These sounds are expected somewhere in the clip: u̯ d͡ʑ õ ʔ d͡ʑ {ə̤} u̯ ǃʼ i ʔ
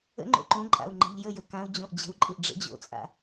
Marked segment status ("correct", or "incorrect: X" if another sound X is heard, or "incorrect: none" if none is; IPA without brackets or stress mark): correct